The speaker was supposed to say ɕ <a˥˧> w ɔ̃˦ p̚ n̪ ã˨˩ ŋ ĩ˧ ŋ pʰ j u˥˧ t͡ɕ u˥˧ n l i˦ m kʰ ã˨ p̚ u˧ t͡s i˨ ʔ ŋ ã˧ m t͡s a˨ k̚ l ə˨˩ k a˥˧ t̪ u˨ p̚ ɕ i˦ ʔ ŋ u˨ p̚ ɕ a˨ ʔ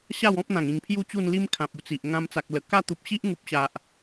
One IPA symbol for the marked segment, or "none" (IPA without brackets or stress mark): a˥˧